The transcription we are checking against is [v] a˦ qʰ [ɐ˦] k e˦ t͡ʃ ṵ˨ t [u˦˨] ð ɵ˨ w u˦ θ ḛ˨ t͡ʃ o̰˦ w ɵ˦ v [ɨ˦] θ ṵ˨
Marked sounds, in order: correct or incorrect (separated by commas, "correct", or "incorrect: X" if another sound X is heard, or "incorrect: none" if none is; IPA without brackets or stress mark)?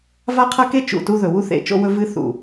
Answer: correct, correct, incorrect: u˦, correct